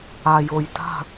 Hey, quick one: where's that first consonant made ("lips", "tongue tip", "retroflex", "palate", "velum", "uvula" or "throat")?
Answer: palate